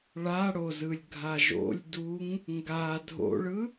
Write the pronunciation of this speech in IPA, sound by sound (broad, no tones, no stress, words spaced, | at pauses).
ɭaɽozɯlʲɡʱa ʒo̰lʲduŋ | ŋɡa dʱo̰ɭɯ